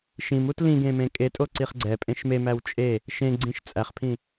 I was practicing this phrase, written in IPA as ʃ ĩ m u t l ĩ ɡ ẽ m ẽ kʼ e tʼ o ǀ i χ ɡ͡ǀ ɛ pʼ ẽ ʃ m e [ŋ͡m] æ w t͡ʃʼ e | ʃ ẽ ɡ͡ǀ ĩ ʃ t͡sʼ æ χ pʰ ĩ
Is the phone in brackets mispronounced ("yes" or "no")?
yes